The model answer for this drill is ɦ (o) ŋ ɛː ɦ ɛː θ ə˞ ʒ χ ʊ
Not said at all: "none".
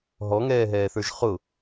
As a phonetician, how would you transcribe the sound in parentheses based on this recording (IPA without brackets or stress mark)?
ɔ